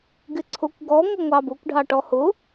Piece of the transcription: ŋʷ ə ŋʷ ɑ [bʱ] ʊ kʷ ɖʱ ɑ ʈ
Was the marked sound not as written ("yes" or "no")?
yes